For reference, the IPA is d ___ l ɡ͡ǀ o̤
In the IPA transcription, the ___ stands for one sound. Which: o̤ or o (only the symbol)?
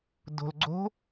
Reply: o̤